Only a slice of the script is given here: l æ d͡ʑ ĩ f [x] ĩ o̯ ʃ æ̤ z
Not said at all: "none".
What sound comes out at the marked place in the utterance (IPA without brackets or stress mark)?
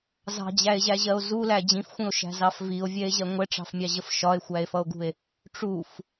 xʷ